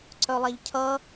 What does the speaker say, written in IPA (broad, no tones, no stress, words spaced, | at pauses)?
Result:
ǀœlˠæʎcʰʌ